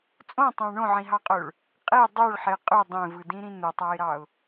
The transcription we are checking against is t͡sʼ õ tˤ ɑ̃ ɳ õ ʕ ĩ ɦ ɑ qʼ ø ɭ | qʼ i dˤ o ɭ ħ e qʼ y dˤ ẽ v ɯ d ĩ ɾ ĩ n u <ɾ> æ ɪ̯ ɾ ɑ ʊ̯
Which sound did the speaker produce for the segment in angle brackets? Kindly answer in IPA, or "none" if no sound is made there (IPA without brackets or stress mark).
tˤ